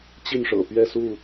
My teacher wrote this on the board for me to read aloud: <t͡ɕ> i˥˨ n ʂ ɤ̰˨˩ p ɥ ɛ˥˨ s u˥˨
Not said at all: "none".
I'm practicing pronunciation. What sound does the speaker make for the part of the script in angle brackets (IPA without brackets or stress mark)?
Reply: t͡ɕ